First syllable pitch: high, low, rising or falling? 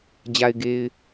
low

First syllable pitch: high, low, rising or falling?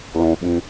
low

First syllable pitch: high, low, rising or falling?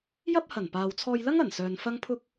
high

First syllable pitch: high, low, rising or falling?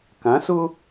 rising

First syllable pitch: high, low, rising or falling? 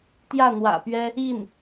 falling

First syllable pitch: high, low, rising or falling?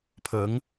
rising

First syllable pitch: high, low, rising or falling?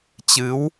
rising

